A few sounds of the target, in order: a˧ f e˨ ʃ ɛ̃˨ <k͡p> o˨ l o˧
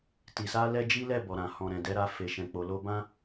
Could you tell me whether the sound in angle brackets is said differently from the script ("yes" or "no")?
no